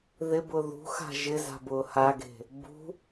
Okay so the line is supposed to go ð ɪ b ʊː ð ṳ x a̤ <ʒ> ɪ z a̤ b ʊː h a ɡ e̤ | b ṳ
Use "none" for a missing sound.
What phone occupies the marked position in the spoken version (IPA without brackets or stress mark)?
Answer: ʒ